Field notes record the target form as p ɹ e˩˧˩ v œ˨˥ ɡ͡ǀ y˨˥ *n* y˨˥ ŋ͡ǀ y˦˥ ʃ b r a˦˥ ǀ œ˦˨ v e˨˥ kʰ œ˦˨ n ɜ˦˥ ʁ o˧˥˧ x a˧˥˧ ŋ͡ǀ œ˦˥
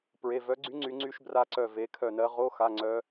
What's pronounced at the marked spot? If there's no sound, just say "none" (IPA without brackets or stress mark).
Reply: ŋ͡ǀ